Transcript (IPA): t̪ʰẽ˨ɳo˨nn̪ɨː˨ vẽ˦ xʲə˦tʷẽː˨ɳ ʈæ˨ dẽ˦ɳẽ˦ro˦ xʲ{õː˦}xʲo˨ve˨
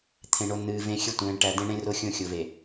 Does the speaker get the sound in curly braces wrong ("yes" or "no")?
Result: yes